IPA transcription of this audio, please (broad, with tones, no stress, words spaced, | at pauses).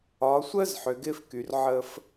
ɒ˨˦sʷəː˦zħʏ˨ ɡɪː˦fky˨rʕəː˦f